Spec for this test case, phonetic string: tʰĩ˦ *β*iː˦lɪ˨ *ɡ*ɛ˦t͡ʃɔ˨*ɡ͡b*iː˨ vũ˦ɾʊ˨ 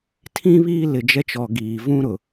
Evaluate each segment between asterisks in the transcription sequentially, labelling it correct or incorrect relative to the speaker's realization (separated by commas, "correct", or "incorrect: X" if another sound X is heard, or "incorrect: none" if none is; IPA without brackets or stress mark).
correct, incorrect: d͡ʒ, incorrect: ɡ